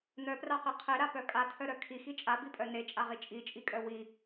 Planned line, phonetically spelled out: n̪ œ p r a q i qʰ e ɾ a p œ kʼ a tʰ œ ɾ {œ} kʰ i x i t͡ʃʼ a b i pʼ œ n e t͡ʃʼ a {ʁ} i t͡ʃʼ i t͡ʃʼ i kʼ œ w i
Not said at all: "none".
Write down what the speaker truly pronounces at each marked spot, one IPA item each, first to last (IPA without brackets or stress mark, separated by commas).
œ, ʁ